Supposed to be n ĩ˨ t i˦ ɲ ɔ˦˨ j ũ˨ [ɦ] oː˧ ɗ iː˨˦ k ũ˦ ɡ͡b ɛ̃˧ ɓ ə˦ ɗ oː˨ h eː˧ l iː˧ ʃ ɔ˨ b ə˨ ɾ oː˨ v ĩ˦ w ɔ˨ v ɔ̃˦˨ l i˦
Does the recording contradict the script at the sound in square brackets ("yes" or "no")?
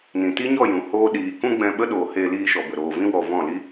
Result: yes